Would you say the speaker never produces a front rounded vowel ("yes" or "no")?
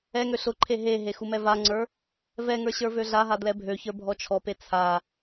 no